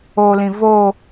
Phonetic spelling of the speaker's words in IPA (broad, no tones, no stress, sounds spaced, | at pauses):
o l ĩ v o